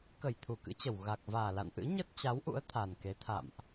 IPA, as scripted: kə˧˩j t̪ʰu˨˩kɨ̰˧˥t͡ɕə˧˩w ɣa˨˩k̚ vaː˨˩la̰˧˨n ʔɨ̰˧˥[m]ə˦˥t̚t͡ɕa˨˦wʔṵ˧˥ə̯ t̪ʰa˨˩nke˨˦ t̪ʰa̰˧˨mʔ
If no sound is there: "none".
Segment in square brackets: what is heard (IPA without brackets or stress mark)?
ɲ